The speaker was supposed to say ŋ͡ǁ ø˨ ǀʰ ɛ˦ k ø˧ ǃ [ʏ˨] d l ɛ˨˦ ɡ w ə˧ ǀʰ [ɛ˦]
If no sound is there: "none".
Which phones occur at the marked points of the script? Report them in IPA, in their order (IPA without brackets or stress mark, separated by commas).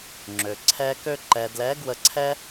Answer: ɛ˨, ɛ˦